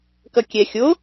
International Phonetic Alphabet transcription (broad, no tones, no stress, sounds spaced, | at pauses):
k ʌ kʲ ɛ xʲ o